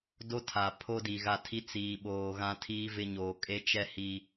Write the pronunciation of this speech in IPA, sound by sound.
d o˦ tʰ a˨ pʰ o˦ d i˨ ɣ a˦˨ tʰ i˦ t͡s iː˨ ɓ oː˨ ɣ ã˦ tʰ iː˦ v ɪ˦ ɲ oː˨ kʼ e˦ t͡ʃ ɛ˦ h i˦

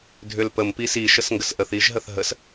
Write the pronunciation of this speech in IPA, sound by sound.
dʱ ʏ l p ə m p i s i ʃ ə s ŋ ɡ ə s ʔ ə θ i ʒ ɦ ə θ ɦ ə s

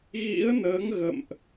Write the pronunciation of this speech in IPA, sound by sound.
ɣ ḭ˧˥ ə̯ n əː˨˦ ŋ ɣ ə̰˧˨ m ʔ

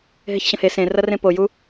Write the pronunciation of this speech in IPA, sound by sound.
ɦ e ç ɕ ɐ̃ h e s ẽ r ɐ r ẽ p o j u

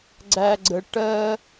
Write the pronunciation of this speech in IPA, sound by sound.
ɡ͡ǀ æ˨ ɡ͡ǀ ə˨ ʈ ɜ˧

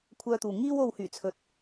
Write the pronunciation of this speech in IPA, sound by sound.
kʷʰ œː˧ t̪ uː˨ ŋ iː˧ w o˨ w h yː˨˩ t͡sʰ ɵ˨ t̚

